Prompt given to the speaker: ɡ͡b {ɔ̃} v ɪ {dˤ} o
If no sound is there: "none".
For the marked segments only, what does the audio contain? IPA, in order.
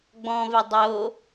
ɔ̃, dˤ

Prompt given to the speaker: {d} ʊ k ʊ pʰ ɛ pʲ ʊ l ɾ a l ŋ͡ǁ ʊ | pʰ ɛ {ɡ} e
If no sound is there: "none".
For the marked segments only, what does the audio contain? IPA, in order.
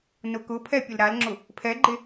n, ɡ͡ǃ

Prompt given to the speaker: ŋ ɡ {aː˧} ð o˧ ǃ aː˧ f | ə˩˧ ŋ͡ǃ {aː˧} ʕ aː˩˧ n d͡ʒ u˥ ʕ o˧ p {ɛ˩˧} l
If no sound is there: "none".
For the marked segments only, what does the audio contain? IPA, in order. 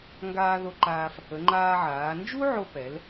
aː˧, aː˧, ɛ˩˧

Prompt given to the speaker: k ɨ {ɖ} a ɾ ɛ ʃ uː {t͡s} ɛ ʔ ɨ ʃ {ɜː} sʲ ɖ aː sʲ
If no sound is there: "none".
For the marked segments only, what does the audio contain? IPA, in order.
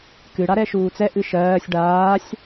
ɽ, t͡s, ɜː

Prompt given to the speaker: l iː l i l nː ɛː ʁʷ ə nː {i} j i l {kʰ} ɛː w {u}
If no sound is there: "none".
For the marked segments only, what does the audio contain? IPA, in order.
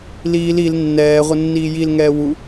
iː, ŋ, u

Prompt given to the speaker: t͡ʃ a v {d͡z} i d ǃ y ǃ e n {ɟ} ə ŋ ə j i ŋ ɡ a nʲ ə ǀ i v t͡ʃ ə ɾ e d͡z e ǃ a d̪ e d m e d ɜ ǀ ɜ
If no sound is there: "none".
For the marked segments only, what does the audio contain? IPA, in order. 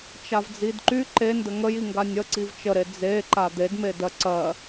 d͡z, d

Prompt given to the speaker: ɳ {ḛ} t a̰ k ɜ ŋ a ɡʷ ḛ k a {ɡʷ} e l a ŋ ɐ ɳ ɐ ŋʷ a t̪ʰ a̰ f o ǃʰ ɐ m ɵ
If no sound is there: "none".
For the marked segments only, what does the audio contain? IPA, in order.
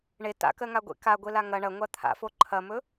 e, ɡʷ

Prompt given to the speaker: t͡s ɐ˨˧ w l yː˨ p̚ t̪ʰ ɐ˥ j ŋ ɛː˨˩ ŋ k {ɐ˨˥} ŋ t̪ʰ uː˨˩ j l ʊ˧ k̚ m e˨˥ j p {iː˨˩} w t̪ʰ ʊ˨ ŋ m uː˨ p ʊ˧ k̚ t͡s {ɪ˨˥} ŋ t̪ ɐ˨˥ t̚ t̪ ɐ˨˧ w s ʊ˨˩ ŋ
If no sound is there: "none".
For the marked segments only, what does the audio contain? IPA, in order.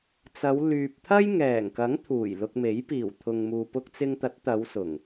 ɐ˨˥, iː˨˩, ɪ˧

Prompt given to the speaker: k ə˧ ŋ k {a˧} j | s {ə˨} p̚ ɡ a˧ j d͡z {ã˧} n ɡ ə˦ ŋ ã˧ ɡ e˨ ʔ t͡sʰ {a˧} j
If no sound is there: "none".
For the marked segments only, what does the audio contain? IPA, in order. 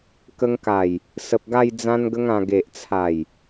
a˨˩, ə˨, ã˦, a˨˩

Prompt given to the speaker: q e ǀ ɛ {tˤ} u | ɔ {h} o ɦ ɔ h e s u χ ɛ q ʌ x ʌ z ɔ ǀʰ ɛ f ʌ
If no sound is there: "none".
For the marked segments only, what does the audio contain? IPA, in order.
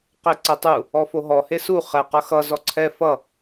tˤ, f

